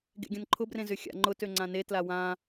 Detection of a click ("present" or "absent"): present